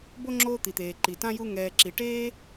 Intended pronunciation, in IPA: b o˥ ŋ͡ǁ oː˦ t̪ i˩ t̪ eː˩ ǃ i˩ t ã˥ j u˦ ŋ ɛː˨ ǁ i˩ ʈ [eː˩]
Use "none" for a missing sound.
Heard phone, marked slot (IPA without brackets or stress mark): eː˥